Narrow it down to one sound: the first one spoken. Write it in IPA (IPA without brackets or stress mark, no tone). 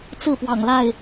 t͡s